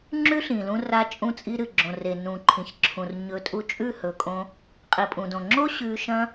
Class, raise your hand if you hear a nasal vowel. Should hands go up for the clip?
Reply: yes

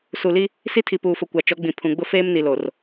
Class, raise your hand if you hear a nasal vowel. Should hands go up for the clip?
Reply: yes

